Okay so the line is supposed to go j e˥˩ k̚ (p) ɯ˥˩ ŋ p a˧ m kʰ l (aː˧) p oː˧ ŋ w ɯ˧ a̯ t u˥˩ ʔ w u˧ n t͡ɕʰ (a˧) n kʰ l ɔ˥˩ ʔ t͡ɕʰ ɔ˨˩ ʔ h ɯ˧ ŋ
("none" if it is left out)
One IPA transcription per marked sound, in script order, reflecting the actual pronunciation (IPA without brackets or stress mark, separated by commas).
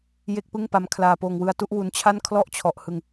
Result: p, aː˧, a˥˩